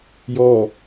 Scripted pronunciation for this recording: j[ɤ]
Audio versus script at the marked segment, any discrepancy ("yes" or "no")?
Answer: yes